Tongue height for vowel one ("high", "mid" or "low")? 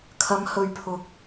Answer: low